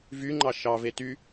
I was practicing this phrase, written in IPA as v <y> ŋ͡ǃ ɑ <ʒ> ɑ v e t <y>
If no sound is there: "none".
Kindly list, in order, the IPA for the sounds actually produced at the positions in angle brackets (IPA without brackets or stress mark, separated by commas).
y, ʃ, y